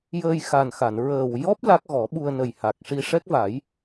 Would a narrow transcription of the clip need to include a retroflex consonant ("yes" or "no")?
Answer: yes